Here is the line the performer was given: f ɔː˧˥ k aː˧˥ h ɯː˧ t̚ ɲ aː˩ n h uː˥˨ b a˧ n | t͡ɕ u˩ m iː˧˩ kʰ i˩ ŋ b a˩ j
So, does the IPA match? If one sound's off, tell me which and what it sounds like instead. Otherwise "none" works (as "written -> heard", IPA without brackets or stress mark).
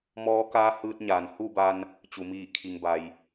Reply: f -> m